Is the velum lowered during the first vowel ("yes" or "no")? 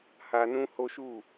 no